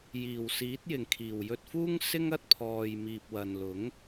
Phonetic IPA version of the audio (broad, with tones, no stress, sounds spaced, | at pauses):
j iː˨˩ w s iː˨˥ t̚ j ɪ˨˩ ŋ kʰ iː˨˩ w j ɵ˧ t̚ f uː˥ ŋ s ɪ˥ ŋ ɐ˥ t̚ pʰ ɔː˨ j m iː˨ p̚ w ɐ˨ n l ʊ˨˥ ŋ